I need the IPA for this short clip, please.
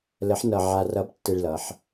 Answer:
lə˧˥ħ nʌ˧ ʕa˧rʌ˧˥btːɘ˧ɭlʌ˩˧ħ

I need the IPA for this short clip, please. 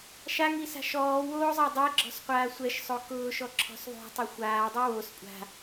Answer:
ʃaŋisa̤ ʃɔːwoːzˤa dˤeɡ͡ǁɔ̤sqʷaː sʷɛʃsˤo kʊːʃɔ ǁʰɔ̤sðˤo̤tˤɛ xʷaːdˤi wos kʷʼa̤

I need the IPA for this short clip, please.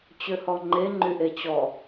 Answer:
t͡ɕøhɔŋ͡ǃe ŋ͡ǃyʔet͡ɕɔ

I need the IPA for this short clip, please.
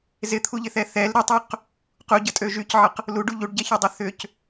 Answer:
zɪt̪ʰuʎɪθɛ θɛl ɾɪtˤøq | quɟətʼø ʒycʕəq | luɖu ʎuɖɟɛçødˤø θʏc

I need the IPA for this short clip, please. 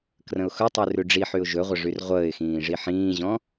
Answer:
krə̃ʊ̯xɵtˤy rʉɖ͡ʐiħyʊ̯ ʒɵʁʷə ʐyrʁʷəːɪ̯xĩː ʐiħĩːʑɔ̃

